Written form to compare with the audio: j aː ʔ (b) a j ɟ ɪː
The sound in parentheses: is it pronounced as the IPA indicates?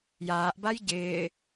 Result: yes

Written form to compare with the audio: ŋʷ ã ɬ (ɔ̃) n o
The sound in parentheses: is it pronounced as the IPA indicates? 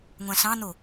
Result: no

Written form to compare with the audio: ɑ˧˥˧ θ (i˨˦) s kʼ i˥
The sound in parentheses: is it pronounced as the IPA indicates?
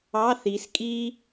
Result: yes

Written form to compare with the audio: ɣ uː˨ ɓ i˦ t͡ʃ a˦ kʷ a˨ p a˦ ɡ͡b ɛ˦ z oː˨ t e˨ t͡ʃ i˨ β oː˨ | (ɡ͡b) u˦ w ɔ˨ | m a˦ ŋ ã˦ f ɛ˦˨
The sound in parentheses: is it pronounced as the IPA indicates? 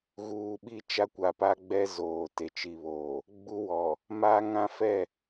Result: yes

